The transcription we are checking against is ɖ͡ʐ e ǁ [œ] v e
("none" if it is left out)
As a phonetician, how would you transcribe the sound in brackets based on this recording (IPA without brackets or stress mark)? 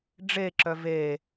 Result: œ